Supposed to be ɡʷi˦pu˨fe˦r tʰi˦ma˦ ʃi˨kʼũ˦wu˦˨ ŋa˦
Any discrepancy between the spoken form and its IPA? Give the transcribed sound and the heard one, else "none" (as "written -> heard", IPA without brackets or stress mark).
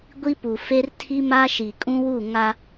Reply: none